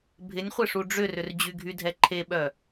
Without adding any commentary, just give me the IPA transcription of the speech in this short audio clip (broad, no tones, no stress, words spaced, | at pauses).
bʱɪnʲχʷɪ ʂuɖ͡ʐʏrʏr d͡ʑyɡʱydʱɛ ǃʰeɓœ